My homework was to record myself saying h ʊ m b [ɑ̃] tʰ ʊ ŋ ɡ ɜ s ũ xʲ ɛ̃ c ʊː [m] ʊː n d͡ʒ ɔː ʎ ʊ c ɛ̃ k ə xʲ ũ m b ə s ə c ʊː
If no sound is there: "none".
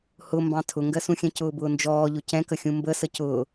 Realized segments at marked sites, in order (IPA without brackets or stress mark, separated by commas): ɑ̃, b